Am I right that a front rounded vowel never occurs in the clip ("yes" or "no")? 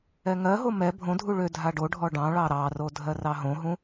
no